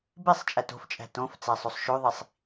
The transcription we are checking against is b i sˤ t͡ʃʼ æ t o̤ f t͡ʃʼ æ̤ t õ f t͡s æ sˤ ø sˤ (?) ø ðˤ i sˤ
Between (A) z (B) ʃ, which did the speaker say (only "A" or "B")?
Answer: B